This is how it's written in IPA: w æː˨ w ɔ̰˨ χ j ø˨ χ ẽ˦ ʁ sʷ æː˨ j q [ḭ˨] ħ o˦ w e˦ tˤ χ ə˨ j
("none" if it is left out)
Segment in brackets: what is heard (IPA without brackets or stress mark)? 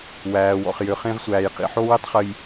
ḭ˨